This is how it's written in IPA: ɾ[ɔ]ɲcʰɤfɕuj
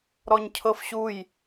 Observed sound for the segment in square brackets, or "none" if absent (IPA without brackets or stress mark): ɔ